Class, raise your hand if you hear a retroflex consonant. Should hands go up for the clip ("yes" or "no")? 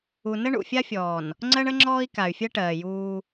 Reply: yes